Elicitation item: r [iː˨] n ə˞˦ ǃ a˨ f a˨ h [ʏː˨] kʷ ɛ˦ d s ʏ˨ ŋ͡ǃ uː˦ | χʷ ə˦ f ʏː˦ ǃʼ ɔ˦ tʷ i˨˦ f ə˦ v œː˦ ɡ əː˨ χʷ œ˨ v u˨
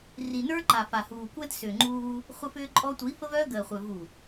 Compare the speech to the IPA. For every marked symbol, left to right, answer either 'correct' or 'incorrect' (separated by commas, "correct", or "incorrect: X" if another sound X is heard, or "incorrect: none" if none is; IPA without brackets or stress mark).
incorrect: i˨, incorrect: uː˨